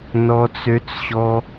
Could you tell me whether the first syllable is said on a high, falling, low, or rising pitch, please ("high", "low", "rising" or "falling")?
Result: high